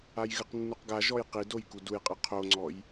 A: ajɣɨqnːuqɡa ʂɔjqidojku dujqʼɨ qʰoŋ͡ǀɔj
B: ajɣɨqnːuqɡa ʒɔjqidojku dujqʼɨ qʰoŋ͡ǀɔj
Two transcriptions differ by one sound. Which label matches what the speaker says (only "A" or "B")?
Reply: B